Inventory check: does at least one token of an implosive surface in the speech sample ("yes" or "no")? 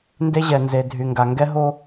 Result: no